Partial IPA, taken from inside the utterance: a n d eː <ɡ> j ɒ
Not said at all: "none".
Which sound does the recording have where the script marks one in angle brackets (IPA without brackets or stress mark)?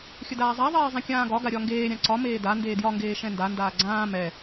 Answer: d